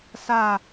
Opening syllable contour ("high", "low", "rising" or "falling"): falling